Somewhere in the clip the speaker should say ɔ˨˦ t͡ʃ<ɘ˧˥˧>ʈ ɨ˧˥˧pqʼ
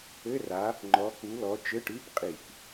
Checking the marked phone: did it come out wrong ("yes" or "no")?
no